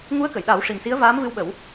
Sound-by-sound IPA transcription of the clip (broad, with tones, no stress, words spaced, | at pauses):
ŋu˧˥ə̯kə˨˩˨jɗa˨˩˦w ʂi˨˩msi˧˥ə̯vaː˧˥m vɨ˧wɓə˨˩˦w